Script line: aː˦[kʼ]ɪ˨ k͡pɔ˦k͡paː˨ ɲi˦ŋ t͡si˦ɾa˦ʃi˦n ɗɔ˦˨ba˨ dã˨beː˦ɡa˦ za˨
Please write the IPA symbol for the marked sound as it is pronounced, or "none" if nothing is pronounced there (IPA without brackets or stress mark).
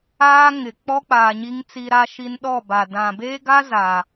ŋ